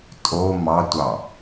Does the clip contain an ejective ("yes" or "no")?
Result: yes